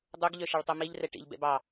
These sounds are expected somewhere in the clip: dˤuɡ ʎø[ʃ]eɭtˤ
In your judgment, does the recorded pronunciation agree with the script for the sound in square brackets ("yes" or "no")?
yes